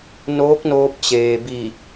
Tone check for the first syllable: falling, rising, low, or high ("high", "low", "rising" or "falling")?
rising